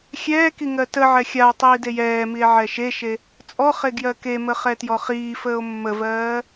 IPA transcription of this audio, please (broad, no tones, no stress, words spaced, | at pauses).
xʲɛːki ŋɜtəʕɛ xʲao̯tˤiːd ejɛːmie̯ ʕɛʃeʃe | t͡sʼɔχe ɡjɜkemə χɛtjɔχiːfəːo̯ mːəvɜː